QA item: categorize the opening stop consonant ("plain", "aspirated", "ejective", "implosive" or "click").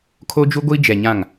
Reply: aspirated